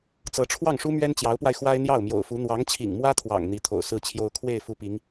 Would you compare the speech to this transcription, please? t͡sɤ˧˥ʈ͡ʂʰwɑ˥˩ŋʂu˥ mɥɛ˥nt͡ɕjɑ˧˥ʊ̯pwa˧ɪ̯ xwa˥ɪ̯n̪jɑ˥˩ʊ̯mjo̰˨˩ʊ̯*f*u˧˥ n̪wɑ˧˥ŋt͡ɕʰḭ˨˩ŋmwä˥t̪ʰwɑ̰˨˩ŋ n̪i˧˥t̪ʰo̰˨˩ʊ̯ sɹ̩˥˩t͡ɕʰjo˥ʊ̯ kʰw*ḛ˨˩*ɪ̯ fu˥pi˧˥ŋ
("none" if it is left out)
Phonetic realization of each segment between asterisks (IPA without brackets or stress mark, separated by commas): f, e˥˩